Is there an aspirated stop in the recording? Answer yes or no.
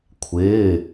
yes